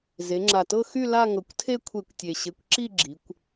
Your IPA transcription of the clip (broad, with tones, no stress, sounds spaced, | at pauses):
z e˩˧ ŋ͡ǁ a˨˩ t ɤ˥˧ x y˥˧ l a˥˧ ŋ ɤ˨˩ kʷ tʰ e˥˧ kʷʰ e˧˩˧ kʷ tʲ e˨˩ ɕ e˨˥ kʷ ǁ i˥˧ ɡ͡ǁ i˩˧ kʷ